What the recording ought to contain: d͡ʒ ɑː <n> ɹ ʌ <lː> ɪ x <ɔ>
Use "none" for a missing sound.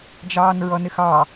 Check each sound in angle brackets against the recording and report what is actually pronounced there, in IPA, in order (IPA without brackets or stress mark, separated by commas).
n, n, ɑ